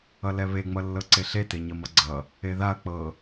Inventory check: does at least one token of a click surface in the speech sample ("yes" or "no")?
yes